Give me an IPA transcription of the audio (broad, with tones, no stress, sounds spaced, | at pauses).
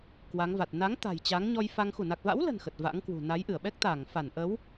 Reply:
k w a˨˦ ŋ v a˨˩ t̚ n a˨˦ ŋ t̪ a̤˨˩ j t͡ɕ a˨˦ ŋ ɲ ɔ˧ j f a˧ ŋ x u˧˩ n a˨˩ k̚ v a̰˧˥ w l ə̤˨˩ n x ə˨˩ t̚ v a̰˧˥ ŋ k w ṳ˨˩ n a˨˦ j ʔ ɨ˧˩ ə̯ ɓ ɛ˦˥ k̚ t̪ a˧˩ ŋ f a˧˩ n ʔ ə˨˦ w